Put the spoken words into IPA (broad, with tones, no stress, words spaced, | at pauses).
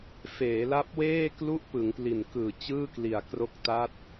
feː˩˦la˦˥p̚weː˥˩ klu˥˩ʔpɯ˩˦ŋpli˨˩nkɯː˨˩ t͡ɕɯː˥˩kli˨˩a̯kro˦˥k̚ ta˦˥t̚